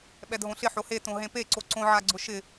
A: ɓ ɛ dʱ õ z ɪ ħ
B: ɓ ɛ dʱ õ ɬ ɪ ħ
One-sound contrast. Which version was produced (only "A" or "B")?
B